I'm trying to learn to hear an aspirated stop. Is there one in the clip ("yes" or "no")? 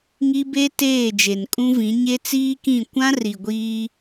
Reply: no